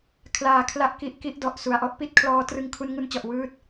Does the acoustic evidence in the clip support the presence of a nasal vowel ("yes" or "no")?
no